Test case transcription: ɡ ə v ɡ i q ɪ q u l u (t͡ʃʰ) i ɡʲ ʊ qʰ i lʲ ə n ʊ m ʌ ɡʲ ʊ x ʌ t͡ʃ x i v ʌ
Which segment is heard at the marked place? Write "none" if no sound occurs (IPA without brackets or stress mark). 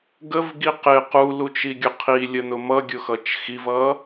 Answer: t͡ʃ